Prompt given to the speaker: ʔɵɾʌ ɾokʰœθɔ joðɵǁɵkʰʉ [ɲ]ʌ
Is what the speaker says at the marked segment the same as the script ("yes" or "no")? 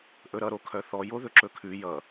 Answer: no